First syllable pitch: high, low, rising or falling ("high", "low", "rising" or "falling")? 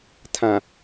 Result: low